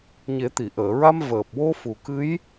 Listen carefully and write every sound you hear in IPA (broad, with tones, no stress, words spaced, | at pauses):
ɲe˨˩˦t̪i˨˩˨ʔəː˨˩˨ɹa˧m vəː˨˩p̚wo˧ fu˨˩kɨ˧˥j